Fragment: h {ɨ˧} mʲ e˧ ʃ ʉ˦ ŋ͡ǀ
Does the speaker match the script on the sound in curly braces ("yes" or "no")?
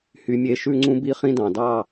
no